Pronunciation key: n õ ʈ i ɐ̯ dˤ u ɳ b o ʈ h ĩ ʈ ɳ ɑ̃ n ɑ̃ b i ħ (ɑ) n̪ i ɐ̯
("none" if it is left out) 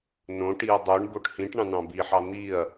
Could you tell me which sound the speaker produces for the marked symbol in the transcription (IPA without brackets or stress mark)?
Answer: ɑ